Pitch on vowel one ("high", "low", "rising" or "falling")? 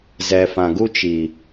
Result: low